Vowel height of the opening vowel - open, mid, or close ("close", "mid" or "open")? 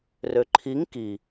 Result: mid